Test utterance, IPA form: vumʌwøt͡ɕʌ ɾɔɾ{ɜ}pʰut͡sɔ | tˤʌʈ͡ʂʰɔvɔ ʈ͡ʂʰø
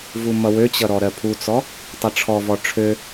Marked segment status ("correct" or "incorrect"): correct